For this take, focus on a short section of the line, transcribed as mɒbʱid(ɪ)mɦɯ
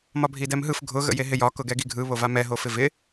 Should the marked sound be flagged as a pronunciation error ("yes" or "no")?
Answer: yes